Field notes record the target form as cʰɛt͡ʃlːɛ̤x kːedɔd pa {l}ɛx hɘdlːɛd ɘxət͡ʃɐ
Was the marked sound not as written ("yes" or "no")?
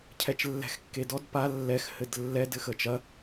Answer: yes